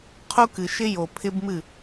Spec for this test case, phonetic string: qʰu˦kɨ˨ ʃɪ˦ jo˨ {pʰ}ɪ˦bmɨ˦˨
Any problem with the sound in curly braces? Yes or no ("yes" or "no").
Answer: no